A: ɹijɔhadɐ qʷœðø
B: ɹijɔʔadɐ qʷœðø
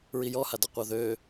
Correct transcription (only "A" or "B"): A